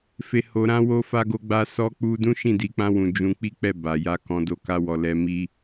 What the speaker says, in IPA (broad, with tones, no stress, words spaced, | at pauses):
fe˨ho˨ ɾã˧wo˧ fa˧ɡo˧ɡ͡ba˧ sɔ˧k͡pu˧dũ˦ ʃĩ˦˨di˧ k͡pã˧wũ˨ d͡ʒũ˧k͡pi˦k͡pɛ˦˨ ba˨ja˧ kɔ̃˧do˦ka˦wɔ˧ lɛ˧mi˦